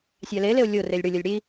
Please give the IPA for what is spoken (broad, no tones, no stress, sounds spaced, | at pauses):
sʲ a l e l e o̯ lʲ o r e lʲ ɽ ʊ lʲ ɔ lʲ ɽ i